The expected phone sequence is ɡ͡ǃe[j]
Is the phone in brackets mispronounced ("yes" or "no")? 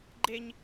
yes